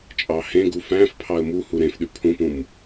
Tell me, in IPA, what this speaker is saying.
t͡ʃʼ ɑ h ẽ ɡ u f æ̃ f pʰ ɑ ə̯ m u h u ɾ ẽ f ɗ y pʰ ũ p ũ m

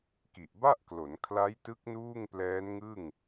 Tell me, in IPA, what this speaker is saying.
k i˨˩ ʔ b a˥˩ ʔ k l o˩˦ n kʰ l a˦˥ j t ɯ˦˥ k̚ n uː˥˩ ŋ p l ɛː˦˥ n ŋ ɯ˥˩ ŋ

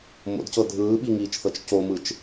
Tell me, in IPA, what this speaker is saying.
m o̰ d c ɤ dʱ ɯː ɓ i ŋ iː t͡ʃ θ ɤ t͡ʃ c o m ɯ t͡ʃ

